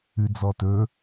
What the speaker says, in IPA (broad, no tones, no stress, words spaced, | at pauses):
ʉd͡zɔtɵ